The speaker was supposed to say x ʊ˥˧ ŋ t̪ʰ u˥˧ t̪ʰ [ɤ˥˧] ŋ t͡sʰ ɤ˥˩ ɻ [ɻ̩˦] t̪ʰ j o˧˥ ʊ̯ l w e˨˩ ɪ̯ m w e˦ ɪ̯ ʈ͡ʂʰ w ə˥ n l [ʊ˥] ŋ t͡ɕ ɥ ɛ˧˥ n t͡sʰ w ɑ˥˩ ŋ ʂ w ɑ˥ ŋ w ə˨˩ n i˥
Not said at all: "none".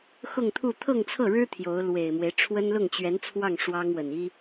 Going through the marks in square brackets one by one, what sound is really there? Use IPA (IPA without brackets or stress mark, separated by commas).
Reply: ɤ˥˧, ɻ̩˥, ʊ˥˩